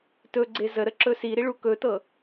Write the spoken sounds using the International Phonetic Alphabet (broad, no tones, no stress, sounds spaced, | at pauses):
t ɵ ɡ͡ǀ e z ə ɾ ə ǁ ɵ s i ɾ i ɭ u k ɵ t ɤ